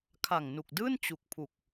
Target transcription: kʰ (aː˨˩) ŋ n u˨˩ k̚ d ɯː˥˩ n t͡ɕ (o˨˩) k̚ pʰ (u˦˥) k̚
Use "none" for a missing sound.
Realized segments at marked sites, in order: a˨˩, u˨˩, u˨˩

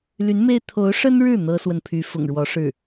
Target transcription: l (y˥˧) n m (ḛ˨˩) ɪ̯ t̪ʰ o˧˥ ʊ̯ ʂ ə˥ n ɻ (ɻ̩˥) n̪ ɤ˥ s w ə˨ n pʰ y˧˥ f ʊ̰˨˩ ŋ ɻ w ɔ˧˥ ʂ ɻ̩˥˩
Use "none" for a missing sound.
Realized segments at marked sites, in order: y˧˥, e˥, ɻ̩˥˩

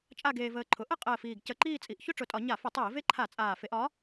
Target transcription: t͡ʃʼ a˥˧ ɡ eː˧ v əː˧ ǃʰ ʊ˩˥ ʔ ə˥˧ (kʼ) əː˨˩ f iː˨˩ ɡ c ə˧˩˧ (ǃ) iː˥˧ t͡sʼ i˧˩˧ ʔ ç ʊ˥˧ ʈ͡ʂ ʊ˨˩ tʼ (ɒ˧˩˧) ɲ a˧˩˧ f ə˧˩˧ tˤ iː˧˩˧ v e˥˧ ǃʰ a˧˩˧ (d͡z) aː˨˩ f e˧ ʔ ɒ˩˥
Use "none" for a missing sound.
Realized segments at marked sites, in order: qʼ, ǃ, ɒ˧˩˧, t͡sʼ

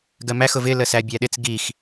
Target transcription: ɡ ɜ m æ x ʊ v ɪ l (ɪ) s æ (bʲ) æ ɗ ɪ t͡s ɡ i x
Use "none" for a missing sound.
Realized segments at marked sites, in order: ə, bʲ

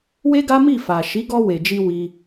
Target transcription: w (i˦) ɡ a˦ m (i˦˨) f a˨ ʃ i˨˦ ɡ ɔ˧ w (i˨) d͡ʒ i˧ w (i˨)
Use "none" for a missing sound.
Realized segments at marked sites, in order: e˦, i˦˨, e˨, i˧

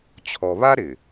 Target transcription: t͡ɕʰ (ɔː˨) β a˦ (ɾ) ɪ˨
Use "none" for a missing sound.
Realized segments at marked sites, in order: ɔ˨, ɾ

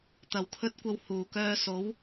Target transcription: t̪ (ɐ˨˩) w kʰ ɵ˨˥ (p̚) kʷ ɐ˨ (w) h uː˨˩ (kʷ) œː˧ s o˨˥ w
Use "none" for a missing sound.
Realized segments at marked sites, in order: ɐ˨˩, t̚, w, k

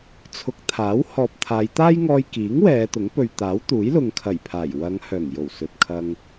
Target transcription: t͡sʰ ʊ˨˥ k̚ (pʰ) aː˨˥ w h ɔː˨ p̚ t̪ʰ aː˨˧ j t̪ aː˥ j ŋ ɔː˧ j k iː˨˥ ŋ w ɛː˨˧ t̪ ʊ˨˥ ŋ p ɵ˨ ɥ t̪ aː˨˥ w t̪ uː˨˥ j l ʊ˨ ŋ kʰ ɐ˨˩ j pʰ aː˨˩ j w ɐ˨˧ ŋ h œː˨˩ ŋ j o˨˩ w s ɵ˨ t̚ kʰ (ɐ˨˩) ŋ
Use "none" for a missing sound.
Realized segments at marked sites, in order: t̪ʰ, ɐ˧

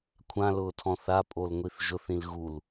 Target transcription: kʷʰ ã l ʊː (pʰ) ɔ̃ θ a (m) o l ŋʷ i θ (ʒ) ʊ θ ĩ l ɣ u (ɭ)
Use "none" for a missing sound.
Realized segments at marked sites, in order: tʰ, pʼ, ʒ, l

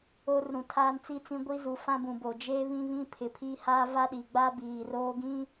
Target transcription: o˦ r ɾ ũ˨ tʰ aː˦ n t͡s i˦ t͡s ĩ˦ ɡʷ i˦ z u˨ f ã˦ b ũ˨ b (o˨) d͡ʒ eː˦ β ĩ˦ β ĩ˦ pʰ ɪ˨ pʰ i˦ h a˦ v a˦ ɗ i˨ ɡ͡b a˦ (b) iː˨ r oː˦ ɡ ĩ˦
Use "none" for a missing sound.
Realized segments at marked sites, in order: o˨, b

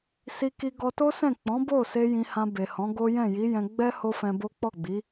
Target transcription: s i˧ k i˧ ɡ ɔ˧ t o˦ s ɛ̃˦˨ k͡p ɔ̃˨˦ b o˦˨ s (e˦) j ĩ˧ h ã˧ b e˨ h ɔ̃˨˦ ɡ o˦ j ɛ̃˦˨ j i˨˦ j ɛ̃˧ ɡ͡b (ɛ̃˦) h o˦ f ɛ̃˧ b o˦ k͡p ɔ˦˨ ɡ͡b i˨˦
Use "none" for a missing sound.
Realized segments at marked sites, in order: e˧, ɛ˦

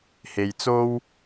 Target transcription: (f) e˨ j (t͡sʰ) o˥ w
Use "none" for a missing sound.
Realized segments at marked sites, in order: h, t͡s

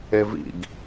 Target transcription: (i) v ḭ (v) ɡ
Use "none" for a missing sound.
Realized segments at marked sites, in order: e, none

